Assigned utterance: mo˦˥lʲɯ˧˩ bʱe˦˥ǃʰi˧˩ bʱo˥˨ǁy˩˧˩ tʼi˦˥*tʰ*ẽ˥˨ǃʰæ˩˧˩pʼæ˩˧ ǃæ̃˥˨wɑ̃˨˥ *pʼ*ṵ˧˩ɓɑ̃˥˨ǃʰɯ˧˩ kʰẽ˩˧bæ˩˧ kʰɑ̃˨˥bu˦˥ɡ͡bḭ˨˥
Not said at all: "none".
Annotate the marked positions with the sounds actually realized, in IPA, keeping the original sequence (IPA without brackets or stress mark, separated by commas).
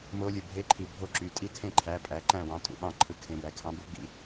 tʰ, tʼ